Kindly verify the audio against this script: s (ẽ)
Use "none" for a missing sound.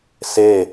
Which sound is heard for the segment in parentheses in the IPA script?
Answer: e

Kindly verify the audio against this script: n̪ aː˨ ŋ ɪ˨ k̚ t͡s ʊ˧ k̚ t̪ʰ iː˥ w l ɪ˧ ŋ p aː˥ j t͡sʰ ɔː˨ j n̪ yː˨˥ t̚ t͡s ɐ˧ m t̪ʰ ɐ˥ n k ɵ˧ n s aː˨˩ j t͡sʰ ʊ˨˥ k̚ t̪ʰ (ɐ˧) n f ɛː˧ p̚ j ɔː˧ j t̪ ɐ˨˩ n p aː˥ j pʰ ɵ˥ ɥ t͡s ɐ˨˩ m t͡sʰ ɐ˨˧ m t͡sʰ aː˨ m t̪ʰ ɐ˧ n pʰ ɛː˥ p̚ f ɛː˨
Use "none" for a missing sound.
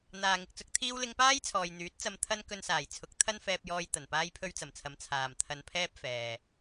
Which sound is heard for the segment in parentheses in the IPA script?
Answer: ɐ˥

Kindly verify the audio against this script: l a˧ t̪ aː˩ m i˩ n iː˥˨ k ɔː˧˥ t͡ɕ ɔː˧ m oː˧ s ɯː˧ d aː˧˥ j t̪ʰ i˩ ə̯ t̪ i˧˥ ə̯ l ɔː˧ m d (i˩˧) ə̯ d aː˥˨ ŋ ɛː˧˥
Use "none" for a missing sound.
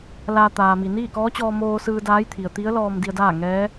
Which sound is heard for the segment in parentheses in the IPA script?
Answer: i˧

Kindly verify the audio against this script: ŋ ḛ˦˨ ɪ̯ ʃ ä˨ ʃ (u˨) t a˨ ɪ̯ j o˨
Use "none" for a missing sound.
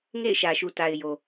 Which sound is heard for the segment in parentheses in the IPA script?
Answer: u˨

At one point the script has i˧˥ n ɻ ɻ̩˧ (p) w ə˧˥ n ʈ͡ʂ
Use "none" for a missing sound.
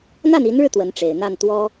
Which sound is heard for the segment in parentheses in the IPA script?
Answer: t̪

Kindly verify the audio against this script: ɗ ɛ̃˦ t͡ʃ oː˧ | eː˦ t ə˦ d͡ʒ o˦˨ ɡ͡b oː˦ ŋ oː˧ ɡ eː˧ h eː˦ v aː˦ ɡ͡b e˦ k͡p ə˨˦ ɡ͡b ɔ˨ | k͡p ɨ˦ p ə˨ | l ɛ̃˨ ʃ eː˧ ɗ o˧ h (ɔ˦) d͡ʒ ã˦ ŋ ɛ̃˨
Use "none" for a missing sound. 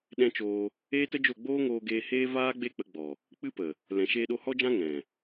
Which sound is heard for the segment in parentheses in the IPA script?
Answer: ɔ˦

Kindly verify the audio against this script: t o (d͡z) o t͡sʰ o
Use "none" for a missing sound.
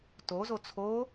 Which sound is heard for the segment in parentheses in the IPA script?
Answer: z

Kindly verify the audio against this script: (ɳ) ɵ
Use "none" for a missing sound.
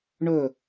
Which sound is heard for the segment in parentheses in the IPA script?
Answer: ɳ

